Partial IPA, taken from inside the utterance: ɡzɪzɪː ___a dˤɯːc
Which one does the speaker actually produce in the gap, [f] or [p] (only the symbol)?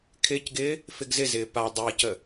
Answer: p